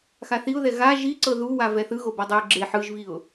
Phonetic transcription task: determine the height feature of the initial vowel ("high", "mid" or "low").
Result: low